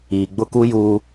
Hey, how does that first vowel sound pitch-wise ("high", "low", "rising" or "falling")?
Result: low